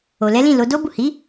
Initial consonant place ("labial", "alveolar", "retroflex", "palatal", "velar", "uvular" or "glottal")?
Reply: alveolar